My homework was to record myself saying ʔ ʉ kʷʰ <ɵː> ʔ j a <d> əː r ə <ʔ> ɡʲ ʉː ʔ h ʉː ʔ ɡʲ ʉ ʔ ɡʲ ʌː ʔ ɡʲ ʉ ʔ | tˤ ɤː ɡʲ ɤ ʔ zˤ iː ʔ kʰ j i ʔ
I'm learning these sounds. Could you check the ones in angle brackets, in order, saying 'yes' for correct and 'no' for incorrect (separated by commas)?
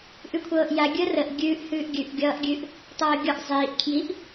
no, no, yes